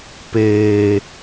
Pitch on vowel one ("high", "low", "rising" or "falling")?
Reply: low